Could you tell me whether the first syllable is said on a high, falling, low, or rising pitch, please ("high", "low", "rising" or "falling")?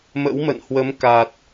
rising